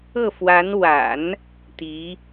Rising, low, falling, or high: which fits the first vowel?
falling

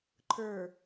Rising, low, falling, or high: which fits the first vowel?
low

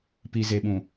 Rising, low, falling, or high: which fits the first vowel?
low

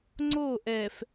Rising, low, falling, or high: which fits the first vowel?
falling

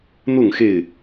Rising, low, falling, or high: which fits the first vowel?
falling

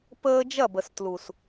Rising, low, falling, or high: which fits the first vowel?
high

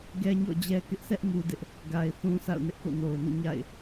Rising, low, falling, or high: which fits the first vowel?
high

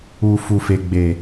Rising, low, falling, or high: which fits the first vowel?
low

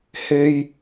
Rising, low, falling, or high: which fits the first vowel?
low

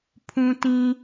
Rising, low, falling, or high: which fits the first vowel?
low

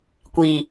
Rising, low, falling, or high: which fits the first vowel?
low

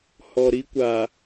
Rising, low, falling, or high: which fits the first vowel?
low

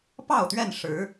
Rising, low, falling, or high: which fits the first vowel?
falling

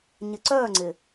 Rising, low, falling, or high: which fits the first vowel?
low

